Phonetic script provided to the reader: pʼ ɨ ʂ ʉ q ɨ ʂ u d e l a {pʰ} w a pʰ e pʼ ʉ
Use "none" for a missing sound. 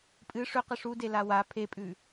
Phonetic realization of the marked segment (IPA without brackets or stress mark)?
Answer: none